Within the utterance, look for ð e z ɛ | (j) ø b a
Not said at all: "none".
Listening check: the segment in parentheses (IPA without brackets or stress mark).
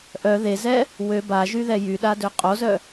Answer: w